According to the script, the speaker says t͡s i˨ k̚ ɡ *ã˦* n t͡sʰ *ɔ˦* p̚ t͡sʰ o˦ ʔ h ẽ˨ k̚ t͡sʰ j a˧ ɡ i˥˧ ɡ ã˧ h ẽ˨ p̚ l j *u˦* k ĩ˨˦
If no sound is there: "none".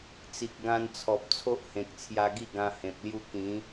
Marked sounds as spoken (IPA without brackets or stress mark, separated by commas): ã˧, ɔ˨, u˦